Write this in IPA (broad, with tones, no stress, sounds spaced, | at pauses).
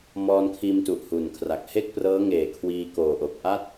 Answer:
m ɔː˧ n kʰ iː˧ m t u˨˩ ʔ h u˨˩ n kʰ r a˨˩ k̚ h e˥˩ k̚ p r ɤː˦˥ ŋ eː˨˩ kʰ w iː˧ k oː˨˩ ʔ o˨˩ k̚ ʔ a˥˩ t̚